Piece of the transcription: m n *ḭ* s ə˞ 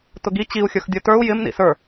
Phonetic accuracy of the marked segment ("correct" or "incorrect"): correct